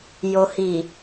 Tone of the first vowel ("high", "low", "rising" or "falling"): low